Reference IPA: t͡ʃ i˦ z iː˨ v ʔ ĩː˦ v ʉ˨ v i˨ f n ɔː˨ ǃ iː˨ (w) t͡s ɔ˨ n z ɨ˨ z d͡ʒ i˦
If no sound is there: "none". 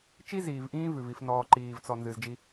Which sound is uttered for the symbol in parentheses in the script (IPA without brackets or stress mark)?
v